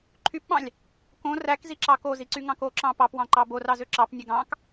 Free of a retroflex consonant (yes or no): yes